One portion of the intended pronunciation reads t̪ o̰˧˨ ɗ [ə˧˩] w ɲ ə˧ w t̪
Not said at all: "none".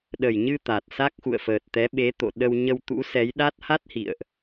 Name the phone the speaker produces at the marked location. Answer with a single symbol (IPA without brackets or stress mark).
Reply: ə˧